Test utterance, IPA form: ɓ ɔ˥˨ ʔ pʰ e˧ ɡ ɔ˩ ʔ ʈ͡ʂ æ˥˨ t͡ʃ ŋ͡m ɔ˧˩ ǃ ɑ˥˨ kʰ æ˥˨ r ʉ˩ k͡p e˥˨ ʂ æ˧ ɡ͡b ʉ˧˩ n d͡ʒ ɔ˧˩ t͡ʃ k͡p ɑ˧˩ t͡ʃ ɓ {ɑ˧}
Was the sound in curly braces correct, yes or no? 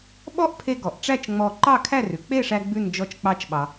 no